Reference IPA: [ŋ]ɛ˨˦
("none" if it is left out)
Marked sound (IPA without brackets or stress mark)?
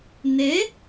n